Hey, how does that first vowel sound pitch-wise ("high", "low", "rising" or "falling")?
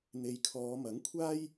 low